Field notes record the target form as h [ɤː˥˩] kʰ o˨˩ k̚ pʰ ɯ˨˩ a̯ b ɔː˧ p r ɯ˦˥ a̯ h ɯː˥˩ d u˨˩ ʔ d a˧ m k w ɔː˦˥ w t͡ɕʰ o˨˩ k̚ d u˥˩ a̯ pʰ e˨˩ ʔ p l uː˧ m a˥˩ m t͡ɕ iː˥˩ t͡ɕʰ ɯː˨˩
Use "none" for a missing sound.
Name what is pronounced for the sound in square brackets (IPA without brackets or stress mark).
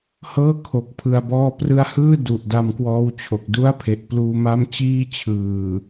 ɤː˥˩